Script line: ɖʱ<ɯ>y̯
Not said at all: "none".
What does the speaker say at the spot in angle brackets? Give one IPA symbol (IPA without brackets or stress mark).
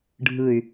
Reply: ɯ